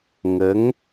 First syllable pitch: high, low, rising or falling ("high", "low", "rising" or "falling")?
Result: rising